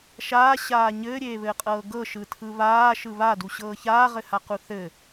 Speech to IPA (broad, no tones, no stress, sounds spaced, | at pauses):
ʃ aː ɕ aː ɲ ɘː ɾʲ eː β ɘː qʼ ɤː ɡ ɤ ʃ ɯ tʰ ɯ β aː ʃ ɯ β a d u ɕ ɤː ç aː ʁ ɘ h a q u θ ɘ